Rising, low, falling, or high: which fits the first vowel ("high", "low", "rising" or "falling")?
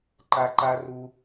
high